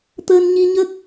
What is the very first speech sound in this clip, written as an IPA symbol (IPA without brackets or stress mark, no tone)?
t̪